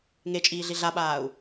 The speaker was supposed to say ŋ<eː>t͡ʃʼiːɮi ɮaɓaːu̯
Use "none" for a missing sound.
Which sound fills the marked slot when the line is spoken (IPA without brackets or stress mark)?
e